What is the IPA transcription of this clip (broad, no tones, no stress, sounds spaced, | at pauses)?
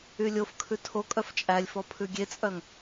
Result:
y lʲ o f kʰ ʉ tʰ o kʼ œ f t͡ʃʼ æ lʲ f ɔ pʰ ʉ ɡʲ e t͡sʼ œ ŋ